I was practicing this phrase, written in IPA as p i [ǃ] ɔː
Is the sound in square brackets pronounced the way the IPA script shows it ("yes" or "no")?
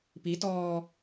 no